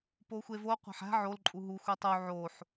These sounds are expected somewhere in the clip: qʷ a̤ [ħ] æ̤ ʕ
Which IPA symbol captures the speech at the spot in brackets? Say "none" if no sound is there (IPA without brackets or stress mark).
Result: ħ